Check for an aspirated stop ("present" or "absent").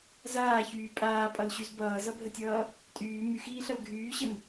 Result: absent